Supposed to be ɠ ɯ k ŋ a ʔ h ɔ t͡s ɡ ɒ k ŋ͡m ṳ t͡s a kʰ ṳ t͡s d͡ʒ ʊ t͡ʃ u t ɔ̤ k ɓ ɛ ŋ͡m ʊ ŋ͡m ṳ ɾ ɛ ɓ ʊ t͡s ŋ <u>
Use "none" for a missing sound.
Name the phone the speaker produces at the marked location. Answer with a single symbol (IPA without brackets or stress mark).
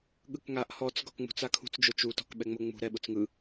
ɯ